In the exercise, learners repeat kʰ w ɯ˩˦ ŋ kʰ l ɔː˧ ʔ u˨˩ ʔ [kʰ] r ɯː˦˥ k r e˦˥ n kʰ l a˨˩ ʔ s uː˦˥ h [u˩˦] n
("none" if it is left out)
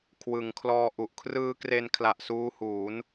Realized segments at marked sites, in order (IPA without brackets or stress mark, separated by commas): kʰ, uː˩˦